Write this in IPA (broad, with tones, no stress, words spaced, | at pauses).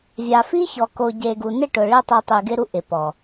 vʲa˨fi˦çɔ˨ ko˨ɟe˨ ɡu˨nɪ˦˨ ʈʊ˨ ɭi˦tˤe˧ tˤi˨ɡɪ˧ɾu˧ ʔɪ˨pɔ˨